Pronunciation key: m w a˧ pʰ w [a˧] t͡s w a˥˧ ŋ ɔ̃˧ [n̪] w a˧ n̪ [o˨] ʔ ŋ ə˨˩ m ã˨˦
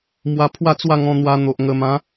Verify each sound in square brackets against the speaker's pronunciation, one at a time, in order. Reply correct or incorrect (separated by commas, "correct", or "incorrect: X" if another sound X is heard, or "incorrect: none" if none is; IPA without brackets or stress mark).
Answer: incorrect: a˥˧, correct, correct